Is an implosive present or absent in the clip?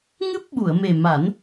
present